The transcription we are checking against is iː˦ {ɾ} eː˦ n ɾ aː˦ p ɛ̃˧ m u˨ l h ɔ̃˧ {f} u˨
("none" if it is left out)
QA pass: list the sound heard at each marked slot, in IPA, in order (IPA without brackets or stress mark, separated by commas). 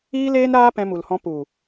l, p